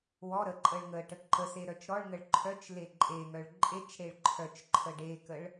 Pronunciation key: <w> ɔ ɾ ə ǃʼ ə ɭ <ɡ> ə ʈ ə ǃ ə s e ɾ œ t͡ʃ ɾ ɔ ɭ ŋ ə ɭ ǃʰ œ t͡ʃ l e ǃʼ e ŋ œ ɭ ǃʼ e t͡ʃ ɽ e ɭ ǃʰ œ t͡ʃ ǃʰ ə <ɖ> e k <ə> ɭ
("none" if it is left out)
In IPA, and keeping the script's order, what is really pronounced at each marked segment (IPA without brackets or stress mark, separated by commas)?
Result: w, ŋ, ɖ, ə